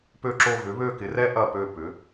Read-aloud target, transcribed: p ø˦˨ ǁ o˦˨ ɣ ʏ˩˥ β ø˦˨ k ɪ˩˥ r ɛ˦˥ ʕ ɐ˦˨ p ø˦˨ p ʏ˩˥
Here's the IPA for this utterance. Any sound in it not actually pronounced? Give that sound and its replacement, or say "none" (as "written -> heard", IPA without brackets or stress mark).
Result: ʕ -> ʔ